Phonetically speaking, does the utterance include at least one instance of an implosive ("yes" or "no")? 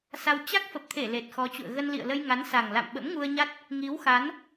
yes